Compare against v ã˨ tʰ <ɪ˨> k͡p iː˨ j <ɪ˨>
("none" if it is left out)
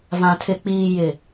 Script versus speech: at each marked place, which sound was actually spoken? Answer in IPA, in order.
ɪ˨, ɪ˨

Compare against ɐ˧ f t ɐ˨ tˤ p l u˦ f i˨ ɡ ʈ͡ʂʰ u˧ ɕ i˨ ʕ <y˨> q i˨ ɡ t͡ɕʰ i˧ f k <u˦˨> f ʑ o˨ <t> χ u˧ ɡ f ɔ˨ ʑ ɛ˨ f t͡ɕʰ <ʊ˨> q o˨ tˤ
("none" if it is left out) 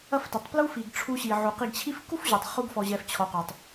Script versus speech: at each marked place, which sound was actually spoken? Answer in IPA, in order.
u˨, u˦, tˤ, ɔ˨

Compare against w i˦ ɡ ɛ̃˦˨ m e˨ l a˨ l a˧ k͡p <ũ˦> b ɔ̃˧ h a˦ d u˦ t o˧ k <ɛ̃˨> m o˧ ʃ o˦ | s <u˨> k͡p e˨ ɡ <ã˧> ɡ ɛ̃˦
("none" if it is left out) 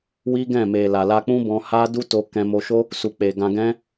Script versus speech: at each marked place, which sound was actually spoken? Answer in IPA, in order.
ũ˦, ɛ̃˧, u˨, ã˧

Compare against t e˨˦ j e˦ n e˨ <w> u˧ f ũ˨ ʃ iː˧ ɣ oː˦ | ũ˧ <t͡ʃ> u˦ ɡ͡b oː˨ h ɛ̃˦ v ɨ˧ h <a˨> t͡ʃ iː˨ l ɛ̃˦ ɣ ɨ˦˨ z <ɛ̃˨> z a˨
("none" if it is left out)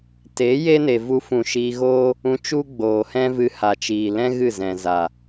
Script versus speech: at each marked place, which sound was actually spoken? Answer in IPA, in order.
v, t͡ʃ, a˨, ɛ̃˨

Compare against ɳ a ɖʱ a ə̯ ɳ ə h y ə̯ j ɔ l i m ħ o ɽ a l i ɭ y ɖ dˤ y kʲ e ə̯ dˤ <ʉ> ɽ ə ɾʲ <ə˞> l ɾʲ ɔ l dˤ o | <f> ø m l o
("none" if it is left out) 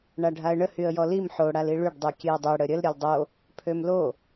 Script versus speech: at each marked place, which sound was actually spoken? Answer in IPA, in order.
ø, ə, pʰ

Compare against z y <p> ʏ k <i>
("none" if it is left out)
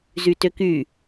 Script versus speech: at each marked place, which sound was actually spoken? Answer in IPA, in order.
t, y

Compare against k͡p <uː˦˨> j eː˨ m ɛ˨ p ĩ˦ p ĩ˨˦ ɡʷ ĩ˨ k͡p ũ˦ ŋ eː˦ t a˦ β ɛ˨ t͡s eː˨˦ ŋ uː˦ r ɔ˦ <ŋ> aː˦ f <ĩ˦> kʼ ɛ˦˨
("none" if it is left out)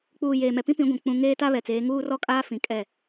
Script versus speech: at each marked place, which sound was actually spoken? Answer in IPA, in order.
uː˨, kʼ, ĩ˨

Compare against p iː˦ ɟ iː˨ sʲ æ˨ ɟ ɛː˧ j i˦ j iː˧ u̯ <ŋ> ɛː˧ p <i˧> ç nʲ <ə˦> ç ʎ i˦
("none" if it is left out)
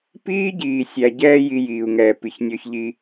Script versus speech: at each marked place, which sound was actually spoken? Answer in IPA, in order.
ŋ, i˧, ɔ˦

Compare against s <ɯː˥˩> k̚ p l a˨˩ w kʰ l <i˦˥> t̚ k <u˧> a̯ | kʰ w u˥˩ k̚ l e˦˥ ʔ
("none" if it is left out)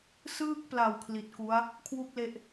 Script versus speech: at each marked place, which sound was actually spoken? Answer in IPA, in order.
ɯː˥˩, i˨˩, u˦˥

